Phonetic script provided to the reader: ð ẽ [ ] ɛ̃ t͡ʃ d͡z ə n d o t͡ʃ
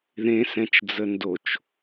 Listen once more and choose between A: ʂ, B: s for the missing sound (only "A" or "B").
B